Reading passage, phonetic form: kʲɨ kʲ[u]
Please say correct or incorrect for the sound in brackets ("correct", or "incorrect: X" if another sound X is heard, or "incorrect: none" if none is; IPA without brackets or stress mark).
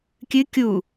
correct